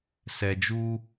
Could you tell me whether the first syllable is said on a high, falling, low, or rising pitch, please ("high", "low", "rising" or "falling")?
low